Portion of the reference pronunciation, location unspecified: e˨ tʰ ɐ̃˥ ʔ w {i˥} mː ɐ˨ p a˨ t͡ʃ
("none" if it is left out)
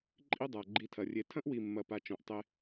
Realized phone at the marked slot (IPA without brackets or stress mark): i˨